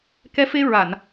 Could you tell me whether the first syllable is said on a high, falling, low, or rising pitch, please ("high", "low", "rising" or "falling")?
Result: rising